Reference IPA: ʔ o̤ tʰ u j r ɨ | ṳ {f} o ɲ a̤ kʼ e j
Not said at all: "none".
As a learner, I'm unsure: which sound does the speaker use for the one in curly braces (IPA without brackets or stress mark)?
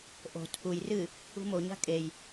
m